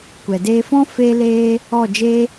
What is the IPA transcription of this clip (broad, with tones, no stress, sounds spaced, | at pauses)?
kʷ ɛ˨ d eː˧ f ɔ̃˦ f e˦ l eː˦ | ɔ˦˨ d͡ʒ e˦